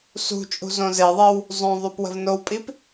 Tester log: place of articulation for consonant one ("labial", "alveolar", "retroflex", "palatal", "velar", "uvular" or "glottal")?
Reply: alveolar